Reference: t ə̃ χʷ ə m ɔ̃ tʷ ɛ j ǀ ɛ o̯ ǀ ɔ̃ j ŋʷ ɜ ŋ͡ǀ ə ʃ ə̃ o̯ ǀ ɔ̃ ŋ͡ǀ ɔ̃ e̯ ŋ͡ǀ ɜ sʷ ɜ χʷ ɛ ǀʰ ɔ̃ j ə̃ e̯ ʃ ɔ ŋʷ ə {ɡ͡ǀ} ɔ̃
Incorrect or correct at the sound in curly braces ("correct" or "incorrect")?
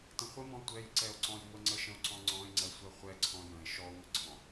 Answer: correct